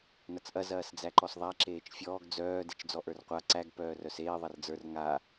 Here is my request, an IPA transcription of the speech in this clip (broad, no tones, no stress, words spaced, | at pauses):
nɐt͡sʔɐ zɐːsd͡zæǃɔsðˤæ ǁeːt͡ʃfʲɔːɡ d͡zœː det͡ʃd͡zɔʔə˞rqʷa ǀæɡ pœːrœseː ðˤɐrd͡zə˞r ŋa